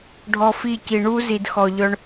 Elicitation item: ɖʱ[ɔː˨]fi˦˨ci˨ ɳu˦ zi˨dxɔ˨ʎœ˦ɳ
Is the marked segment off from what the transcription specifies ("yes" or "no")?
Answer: yes